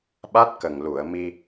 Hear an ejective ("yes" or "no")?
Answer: no